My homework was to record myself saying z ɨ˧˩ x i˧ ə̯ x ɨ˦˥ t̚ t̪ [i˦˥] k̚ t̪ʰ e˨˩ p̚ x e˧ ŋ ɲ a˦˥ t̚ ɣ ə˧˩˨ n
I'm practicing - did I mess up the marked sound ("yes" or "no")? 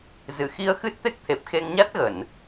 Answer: yes